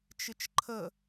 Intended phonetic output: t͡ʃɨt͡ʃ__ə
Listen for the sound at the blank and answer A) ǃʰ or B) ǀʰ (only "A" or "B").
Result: A